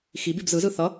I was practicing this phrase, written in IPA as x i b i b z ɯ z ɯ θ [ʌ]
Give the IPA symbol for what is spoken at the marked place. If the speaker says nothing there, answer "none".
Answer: ʌ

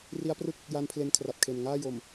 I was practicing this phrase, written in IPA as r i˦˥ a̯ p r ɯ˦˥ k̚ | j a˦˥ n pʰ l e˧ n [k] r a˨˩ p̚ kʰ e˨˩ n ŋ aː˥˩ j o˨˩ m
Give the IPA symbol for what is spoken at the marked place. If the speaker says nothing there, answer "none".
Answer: kʰ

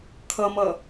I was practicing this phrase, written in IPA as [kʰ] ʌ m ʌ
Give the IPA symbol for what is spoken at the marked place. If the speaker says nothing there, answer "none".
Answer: kʰ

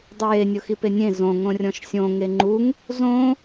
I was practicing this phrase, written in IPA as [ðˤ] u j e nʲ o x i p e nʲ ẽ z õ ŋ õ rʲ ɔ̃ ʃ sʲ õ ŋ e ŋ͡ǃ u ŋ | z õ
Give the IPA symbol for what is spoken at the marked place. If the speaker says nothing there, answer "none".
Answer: dˤ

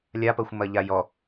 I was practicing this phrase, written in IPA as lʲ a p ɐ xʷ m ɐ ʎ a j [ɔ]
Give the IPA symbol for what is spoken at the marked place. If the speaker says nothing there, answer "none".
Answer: ɔ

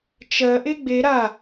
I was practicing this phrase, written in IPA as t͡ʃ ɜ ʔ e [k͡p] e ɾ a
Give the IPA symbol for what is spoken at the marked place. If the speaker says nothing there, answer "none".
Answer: ɡ͡b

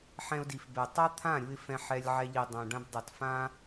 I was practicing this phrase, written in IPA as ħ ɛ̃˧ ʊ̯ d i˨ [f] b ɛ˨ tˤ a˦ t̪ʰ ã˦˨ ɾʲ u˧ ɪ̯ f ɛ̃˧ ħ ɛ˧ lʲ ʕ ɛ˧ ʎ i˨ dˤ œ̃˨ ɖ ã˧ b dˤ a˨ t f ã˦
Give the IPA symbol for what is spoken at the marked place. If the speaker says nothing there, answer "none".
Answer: f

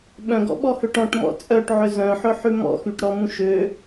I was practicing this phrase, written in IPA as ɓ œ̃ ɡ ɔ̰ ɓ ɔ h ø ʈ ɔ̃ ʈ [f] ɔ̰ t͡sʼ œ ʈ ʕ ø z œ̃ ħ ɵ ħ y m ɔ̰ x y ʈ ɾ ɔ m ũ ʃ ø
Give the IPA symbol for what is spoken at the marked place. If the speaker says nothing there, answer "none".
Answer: m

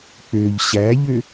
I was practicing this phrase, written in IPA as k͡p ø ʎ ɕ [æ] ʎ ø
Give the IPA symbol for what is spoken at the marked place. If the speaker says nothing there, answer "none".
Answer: æ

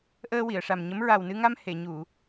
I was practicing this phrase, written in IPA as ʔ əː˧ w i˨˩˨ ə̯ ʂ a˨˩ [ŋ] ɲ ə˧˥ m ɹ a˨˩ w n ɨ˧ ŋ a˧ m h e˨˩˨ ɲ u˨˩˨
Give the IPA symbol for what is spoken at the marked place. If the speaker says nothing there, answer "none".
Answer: m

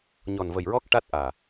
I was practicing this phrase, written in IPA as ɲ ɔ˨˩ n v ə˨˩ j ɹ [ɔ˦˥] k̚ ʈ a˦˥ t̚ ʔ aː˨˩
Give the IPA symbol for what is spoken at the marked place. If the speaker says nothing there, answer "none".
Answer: ɔ˦˥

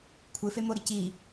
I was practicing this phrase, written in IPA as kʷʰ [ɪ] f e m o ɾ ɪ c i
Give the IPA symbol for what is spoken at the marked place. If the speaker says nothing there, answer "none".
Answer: ɪ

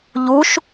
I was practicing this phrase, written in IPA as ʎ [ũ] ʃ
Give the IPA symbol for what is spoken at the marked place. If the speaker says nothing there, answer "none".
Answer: u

